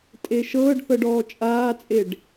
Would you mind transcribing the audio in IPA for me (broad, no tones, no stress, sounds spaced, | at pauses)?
tʼ e ʃ ɤː ɖ θ ɤ ɖ ɔː t͡ʃʼ aː t͡sʼ e ɖ